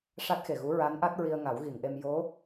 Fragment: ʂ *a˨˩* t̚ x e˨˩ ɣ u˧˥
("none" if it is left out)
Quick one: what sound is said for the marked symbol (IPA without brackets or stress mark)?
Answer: a˦˥